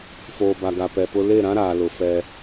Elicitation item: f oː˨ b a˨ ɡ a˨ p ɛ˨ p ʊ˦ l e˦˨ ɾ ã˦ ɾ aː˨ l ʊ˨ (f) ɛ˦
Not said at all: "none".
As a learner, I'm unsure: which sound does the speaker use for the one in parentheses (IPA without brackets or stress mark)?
f